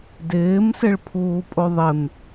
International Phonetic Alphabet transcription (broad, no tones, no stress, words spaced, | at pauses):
dɪːm sɪɭpʰuːpʼoðˤɪm